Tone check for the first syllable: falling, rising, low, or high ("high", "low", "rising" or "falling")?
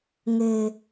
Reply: high